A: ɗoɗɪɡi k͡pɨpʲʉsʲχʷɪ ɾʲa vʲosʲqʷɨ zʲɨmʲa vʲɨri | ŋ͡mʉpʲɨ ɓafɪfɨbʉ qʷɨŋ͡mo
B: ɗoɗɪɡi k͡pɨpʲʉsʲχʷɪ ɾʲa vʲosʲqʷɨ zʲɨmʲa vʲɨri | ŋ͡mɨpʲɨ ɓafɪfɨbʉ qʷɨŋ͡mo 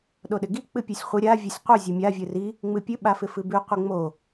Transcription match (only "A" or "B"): B